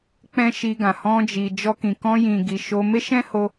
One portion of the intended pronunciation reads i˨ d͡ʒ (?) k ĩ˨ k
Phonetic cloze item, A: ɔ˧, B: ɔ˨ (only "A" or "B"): A